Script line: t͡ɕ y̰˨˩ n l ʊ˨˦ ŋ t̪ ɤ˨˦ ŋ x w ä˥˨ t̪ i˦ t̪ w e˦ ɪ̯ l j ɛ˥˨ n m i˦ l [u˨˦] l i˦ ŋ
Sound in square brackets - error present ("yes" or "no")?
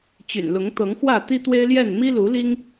no